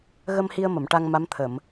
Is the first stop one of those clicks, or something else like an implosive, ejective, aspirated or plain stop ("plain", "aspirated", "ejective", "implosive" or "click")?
plain